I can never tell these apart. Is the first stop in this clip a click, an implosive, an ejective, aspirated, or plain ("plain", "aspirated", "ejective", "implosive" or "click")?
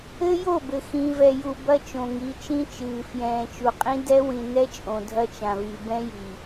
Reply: plain